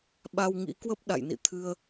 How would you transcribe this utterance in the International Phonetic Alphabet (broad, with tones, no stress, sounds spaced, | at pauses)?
ɓ a˧ w ŋ ḭ˧˥ k w ə˦˥ p̚ ɗ a̰˧˨ j n ḭ˧˨ t̪ʰ ɨ˧ ə̯